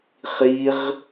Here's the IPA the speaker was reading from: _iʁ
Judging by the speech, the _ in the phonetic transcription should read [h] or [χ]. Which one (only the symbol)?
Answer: χ